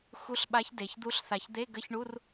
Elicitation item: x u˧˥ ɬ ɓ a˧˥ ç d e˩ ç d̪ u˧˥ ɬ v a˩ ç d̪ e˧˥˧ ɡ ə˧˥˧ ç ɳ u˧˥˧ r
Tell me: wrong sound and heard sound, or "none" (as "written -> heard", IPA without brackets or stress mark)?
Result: v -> θ